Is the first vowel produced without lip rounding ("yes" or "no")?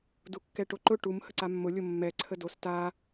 no